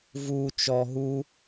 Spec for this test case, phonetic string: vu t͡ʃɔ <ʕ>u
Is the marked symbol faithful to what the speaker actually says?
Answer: no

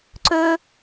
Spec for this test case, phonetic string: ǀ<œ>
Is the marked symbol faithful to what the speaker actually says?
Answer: no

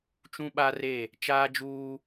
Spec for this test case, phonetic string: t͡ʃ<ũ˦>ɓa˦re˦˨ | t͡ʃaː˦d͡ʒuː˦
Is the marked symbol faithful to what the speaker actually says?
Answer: yes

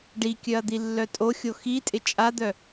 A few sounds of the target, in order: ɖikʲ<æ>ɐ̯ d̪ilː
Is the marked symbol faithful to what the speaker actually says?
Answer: no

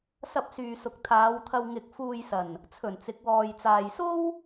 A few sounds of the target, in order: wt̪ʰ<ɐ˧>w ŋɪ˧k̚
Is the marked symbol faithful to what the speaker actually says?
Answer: yes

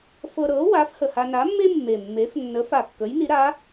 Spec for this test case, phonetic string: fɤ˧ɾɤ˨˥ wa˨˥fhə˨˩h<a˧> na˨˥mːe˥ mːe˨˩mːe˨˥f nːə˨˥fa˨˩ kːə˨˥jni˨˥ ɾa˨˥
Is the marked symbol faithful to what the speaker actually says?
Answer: yes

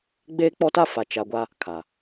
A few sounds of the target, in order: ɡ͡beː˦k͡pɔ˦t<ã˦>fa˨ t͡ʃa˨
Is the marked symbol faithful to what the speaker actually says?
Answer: no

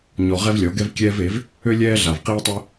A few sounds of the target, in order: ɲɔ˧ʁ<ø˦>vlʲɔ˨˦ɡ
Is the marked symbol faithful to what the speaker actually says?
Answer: no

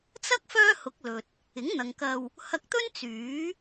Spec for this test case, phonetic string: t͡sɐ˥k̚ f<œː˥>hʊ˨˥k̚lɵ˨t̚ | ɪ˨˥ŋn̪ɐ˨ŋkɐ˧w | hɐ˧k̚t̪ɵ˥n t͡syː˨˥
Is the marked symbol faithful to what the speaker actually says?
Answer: yes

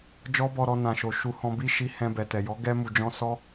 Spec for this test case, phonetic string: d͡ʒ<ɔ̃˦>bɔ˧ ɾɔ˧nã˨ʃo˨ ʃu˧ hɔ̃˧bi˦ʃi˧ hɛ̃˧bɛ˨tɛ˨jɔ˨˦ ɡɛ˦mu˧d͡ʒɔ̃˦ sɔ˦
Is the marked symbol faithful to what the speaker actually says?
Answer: no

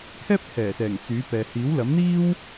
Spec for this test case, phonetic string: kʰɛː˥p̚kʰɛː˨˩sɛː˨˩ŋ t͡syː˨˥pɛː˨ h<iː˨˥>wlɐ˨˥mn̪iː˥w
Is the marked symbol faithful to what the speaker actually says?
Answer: yes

